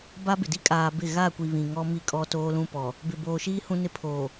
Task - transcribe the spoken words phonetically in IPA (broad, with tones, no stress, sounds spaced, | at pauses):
b a˦ b ɪ˨ d i˦ kʼ aː˨ b ɪ˦˨ ɣ a˦˨ kʷ i˨ β ĩ˨ ŋ ɔ˦ m i˦ kʼ ɔ˦ t oː˦ l ũ˦ p ɔ˨ | b ɪ˨ b oː˨ ʃ iː˦ h ũ˦ n ɪ˦ pʰ oː˨